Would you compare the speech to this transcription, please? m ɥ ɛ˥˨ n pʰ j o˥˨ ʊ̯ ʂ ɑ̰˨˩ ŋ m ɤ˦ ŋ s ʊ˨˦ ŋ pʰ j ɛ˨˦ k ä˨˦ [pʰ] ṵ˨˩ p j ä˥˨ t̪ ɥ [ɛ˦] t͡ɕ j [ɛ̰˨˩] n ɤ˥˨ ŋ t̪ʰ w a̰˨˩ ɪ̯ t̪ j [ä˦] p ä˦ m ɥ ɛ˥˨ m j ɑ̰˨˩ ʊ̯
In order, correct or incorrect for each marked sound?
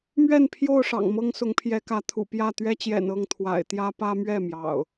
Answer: incorrect: t̪ʰ, correct, correct, correct

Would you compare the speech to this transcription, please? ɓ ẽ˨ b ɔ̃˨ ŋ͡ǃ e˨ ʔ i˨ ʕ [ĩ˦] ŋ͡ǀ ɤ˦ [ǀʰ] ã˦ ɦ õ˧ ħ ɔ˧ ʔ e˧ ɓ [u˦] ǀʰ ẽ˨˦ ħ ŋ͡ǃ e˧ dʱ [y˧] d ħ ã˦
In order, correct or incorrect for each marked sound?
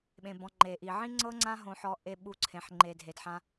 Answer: correct, incorrect: ŋ͡ǀ, incorrect: u˧, incorrect: e˧

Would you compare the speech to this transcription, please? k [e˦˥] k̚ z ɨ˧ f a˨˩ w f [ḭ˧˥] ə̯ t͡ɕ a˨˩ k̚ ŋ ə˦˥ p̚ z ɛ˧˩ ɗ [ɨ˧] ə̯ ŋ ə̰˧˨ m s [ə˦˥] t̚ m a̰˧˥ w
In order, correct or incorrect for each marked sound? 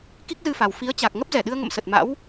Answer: incorrect: i˦˥, incorrect: i˨˦, correct, incorrect: ə˨˩

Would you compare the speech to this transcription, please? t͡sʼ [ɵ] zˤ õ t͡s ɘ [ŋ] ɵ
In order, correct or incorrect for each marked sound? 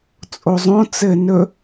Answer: incorrect: o, incorrect: n

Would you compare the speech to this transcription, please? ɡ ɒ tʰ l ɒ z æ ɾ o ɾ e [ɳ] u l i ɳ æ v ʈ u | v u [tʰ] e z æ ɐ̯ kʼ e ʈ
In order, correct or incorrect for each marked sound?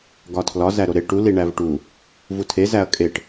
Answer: incorrect: ʈ, correct

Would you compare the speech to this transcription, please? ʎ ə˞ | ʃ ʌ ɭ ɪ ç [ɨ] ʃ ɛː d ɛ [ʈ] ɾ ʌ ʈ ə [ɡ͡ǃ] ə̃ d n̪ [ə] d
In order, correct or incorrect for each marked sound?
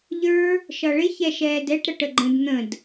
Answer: incorrect: ɛ, correct, correct, incorrect: ə̃

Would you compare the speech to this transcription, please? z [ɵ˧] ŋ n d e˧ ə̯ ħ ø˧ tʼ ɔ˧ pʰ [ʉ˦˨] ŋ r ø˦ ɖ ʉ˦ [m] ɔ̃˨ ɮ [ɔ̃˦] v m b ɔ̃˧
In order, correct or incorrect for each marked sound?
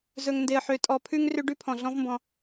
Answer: correct, incorrect: ʉ˦, incorrect: pʰ, correct

